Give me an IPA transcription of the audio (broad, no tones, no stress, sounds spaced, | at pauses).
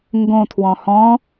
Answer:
ŋ ɡ õ tʰ w ɔ̃ h ɔ̃